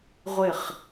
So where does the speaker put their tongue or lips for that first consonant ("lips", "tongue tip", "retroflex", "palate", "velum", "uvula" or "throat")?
uvula